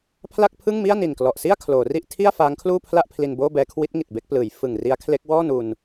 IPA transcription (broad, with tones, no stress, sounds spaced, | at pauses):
pʰ l a˥˩ k̚ pʰ ɯ˥˩ ŋ m i˥˩ a̯ n i˨˩ n k l ɔ˨˩ ʔ s i˥˩ a̯ kʰ l oː˩˦ r i˥˩ ʔ tʰ i˥˩ a̯ f aː˦˥ ŋ kʰ l uː˥˩ pʰ l a˥˩ ʔ pʰ l i˧ n b oː˥˩ b ɛː˦˥ kʰ w i˦˥ t̚ ŋ i˨˩ t̚ b e˥˩ k̚ p l ɯː˩˦ j f ɯ˨˩ ŋ r i˦˥ a̯ kʰ l e˦˥ k̚ w ɔː˥˩ n u˧ n